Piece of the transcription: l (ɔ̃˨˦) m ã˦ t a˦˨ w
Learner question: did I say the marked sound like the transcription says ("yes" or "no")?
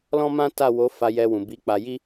no